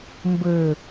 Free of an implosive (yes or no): yes